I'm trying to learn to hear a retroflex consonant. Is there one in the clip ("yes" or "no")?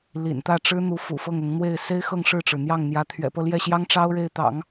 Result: yes